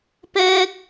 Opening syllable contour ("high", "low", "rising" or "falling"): high